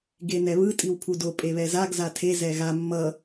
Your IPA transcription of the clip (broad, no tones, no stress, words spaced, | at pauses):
ɡenɛβɯ tʼiwpʰudo pʼeβɛzaɡ zatʰe zɛɣa mːʌ